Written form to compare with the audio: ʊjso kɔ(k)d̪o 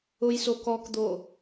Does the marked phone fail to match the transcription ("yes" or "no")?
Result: no